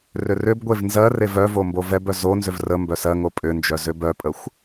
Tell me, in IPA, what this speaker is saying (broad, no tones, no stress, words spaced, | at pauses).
rʏrʏbɡʷev nzɜrev œvo mbovɛbœ zonzʏv rə mbœsɜŋo pʼʏnd͡ʒœ zʏbœpʼəxʷ